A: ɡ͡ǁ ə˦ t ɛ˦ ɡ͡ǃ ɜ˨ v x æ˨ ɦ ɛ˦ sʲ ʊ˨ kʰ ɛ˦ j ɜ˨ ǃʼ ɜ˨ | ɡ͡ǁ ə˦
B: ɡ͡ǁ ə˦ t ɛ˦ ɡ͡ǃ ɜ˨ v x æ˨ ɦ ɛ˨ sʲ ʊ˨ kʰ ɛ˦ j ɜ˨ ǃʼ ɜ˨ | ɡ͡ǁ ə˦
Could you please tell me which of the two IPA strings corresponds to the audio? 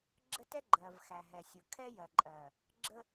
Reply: B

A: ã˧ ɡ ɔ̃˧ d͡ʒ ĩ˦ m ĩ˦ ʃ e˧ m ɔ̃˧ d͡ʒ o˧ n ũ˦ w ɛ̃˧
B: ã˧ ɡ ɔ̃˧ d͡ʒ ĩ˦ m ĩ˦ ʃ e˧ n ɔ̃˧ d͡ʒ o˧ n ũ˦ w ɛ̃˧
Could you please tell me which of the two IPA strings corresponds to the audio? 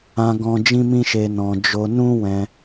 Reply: B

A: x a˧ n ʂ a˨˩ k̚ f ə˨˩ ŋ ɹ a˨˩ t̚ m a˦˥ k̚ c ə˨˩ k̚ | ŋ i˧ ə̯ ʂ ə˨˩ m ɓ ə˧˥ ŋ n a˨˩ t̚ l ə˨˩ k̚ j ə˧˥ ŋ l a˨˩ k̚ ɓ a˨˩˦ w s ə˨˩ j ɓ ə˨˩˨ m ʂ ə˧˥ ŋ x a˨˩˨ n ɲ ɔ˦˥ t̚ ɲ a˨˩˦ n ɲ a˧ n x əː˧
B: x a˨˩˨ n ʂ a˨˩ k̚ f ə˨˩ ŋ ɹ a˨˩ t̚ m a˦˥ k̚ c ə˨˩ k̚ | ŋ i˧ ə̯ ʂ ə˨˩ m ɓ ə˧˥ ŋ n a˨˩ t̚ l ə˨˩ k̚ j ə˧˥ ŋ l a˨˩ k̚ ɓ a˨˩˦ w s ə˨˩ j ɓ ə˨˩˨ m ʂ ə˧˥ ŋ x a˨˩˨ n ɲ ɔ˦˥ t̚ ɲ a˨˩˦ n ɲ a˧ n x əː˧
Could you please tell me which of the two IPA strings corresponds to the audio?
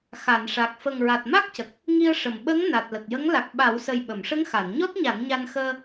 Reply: B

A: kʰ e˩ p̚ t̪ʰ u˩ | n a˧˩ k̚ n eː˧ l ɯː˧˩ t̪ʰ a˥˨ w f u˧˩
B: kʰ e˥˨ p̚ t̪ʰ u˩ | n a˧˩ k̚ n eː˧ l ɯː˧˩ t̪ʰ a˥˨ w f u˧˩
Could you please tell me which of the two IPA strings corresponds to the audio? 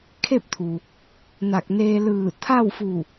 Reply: B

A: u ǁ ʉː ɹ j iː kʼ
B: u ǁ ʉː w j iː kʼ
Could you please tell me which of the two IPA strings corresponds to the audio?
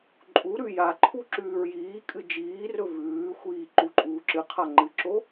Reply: A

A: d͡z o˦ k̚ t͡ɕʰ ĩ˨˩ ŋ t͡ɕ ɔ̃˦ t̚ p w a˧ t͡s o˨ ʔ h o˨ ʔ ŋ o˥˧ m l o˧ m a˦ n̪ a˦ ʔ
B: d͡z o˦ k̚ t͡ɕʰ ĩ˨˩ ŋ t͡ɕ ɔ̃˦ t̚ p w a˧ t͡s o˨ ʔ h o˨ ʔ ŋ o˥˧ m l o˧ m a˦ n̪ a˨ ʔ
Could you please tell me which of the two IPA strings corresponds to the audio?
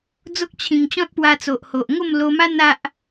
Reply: A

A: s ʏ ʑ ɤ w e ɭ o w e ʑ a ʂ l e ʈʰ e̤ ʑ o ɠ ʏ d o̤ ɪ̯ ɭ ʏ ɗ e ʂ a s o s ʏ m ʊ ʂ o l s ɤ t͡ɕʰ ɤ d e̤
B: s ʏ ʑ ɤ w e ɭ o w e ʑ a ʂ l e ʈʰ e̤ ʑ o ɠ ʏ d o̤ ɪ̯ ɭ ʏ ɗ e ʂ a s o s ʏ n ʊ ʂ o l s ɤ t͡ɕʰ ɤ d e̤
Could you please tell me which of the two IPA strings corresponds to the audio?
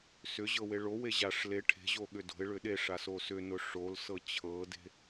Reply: B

